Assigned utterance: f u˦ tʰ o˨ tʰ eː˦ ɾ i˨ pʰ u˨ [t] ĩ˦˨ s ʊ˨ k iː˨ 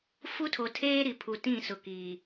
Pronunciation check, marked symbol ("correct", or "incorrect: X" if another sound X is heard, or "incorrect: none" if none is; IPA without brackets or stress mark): correct